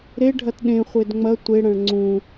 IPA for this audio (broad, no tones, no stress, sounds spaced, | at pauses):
ɾ e ɖʱ ɐ t ɗ ẽ χʷ e d ŋ͡m ɐ tʷ e ɽ ɐ̃ ɭ ŋ͡ǀ ũ